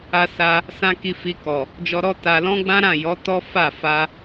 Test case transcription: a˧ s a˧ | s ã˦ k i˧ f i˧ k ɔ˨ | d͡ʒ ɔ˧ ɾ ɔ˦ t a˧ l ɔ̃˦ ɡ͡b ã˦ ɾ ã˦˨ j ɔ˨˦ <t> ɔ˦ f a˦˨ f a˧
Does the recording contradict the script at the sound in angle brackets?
no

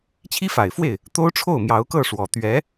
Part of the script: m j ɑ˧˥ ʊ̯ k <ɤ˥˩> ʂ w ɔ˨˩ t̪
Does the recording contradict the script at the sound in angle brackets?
no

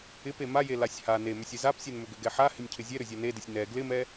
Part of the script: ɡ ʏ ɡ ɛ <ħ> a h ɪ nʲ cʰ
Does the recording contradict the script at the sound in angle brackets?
no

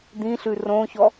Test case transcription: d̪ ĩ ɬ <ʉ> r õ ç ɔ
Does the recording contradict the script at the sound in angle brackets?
no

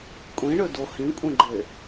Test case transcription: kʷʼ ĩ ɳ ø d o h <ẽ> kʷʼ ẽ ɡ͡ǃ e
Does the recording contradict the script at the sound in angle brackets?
yes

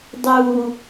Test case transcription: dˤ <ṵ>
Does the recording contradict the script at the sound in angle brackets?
yes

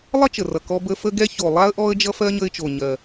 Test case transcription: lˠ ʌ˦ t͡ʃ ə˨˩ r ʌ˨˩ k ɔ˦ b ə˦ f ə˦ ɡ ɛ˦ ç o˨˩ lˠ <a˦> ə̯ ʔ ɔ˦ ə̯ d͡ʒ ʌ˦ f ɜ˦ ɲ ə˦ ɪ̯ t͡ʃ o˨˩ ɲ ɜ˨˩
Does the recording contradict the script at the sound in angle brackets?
no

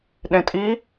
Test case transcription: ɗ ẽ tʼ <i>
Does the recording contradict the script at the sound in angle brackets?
no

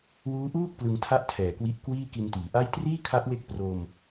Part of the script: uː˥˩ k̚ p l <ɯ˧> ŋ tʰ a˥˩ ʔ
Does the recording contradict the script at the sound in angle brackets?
no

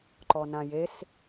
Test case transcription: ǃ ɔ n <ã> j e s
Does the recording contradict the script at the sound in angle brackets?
no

